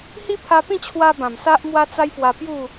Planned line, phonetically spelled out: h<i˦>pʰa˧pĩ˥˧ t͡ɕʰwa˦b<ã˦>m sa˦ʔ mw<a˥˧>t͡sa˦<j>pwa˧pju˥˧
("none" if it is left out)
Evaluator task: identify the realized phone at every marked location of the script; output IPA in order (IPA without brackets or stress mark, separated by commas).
i˦, ã˨˩, a˦, j